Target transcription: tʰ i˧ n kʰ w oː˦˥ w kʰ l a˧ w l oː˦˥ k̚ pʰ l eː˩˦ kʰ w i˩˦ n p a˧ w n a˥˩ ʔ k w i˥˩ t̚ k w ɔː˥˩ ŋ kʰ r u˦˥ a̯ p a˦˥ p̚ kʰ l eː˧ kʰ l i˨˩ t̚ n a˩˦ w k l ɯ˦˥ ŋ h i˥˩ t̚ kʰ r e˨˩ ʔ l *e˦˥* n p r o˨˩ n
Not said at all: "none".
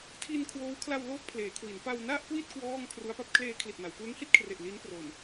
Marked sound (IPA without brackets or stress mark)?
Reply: i˦˥